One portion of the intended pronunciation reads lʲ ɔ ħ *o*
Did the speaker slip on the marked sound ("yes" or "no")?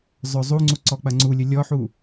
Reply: yes